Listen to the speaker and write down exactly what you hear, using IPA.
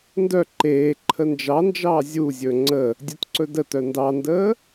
n d œ ǃ eː ǃʰ ə n d͡ʒ ɑ n d͡ʒ ɑː zʲ u zʲ ɵ ŋ͡ǀ ə | dʲ ɵ t ǀ ɵ d ə t œ n d ɑ n d əː

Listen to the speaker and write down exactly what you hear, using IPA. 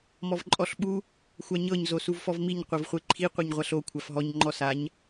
m ɔ v ǃʼ ɔ ɬ ɓ u | xʷ a ɲ ɤ ɲ z o s u v f ɔ v m i ɲ qʷ ɤ v χʷ e ǃʰ i qʷ ɛ ɲ ʁʷ a ɬ o kʷʰ a f ɦ ɔ ɲ ŋ͡ǃ ɔ s a ɲ

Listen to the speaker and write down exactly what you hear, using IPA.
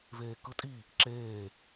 v eː k ɯ tʼ i | ǁ eː

